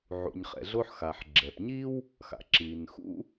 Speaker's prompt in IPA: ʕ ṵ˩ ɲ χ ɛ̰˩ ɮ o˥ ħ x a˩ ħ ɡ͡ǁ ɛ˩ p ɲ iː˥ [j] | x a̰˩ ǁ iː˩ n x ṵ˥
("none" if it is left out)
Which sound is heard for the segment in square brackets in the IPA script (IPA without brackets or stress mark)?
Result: w